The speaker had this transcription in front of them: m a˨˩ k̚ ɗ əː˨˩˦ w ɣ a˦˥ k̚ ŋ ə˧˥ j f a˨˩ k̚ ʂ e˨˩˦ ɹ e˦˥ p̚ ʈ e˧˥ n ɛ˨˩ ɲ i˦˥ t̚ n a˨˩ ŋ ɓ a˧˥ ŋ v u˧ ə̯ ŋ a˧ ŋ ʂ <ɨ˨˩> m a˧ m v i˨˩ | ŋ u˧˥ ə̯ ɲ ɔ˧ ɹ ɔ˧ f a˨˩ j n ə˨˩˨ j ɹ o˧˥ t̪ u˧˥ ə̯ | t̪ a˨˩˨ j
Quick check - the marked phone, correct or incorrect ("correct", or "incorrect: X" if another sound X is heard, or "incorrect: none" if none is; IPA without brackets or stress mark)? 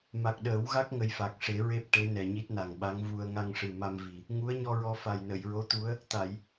correct